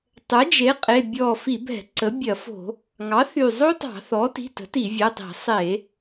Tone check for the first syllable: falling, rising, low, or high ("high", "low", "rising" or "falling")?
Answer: rising